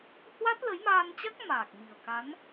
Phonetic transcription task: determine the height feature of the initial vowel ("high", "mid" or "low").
low